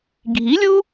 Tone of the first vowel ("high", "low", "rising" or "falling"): rising